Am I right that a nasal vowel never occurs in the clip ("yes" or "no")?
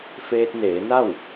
yes